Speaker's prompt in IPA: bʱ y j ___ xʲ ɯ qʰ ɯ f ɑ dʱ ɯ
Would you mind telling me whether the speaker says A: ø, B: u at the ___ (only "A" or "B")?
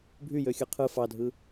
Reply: A